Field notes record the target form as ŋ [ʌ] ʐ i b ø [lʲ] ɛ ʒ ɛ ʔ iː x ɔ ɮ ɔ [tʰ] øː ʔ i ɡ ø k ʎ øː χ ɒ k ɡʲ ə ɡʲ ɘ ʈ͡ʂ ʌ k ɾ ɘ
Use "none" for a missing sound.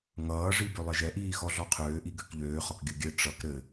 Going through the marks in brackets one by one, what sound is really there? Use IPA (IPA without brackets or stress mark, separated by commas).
ʌː, lˠ, qʰ